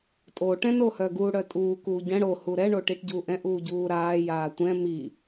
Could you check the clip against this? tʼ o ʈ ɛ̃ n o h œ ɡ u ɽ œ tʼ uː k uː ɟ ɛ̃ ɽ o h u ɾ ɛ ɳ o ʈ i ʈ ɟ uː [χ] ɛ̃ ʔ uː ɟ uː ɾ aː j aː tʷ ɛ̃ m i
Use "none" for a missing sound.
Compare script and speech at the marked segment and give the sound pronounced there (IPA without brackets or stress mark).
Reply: ʔ